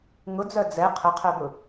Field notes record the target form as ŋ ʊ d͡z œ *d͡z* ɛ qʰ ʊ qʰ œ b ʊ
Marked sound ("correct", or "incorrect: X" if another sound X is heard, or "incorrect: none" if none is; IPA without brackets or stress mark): correct